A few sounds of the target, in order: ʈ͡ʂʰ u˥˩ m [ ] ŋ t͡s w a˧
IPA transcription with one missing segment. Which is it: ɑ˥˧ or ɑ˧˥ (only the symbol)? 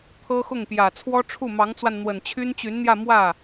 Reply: ɑ˧˥